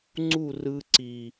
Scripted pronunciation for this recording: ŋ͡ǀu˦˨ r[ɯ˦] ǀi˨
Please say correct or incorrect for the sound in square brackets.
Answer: correct